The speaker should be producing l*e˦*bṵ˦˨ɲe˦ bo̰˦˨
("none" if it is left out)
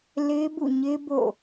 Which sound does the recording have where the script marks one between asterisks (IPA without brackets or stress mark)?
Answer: e˦